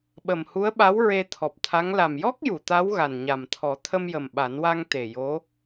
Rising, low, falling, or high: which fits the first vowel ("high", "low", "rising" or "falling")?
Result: low